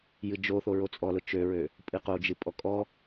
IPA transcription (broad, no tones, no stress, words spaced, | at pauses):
jɨd͡ʒoθo ɹot͡sʼɔlʊ t͡ʃøɹø | pʼɨqod͡ʒɨ pʼɔkʼɔ